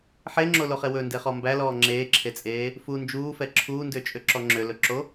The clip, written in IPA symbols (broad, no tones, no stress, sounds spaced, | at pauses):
ħ e ŋ͡ǁ o l o χ e w ɵ n d e χ ɔ m b æ l ɔː ŋ͡ǁ eː ǁʰ e t͡sʼ eː | f u n d͡ʒ uː f ɛ ǁʰ uː n d ø t͡ʃʼ ø ǁ ɔ ŋ͡ǁ ø l ɵ ǁ o